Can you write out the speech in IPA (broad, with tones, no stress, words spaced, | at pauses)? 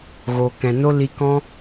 ɣo˨kɛ̃˨no˦ li˧kɔ̃˦